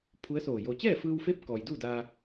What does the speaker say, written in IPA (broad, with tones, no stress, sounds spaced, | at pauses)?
pʰ u˧˥ ə̯ s oː˧˩ j o˧ t͡ɕ ɛː˥˨ f ɯː˧ w f e˧˥ p̚ k ɔː˩ j d uː˥˨ d aː˧